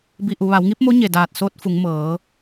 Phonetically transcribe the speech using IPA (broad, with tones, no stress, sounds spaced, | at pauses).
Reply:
b i˧ ʔ u˩˧ ʋ a˩˧ w ŋ i˧˥ p̚ m o˧˥ ɲ e˧˩ d aː˧˩ t̚ s oː˧˥ t̚ f u˩˧ ŋ m ɤː˩˧